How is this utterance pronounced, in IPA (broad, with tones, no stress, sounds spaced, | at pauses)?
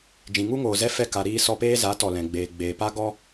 d͡ʒ ĩ˨ ŋ u˦ ŋ oː˨ z ɛ˦ f ɛ˧ k a˨ ɾ iː˧ s ɔ˧ p eː˦ z a˨˦ t ɔ˨ l ɛ̃˨ ɡ͡b eː˨ ɡ͡b eː˨ p a˦ ɡ ɔ˦